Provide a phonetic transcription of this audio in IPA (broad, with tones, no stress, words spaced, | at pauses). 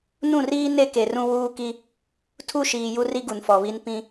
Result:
nũ˦˨riː˦ ne˦ke˨ rũ˦wuː˦ki˦ | tʰu˦ʃiː˨ ju˦ri˦ɡu˨n fɔ˨βi˦n pĩ˦